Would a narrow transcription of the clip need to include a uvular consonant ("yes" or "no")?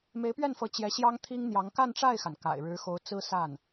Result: no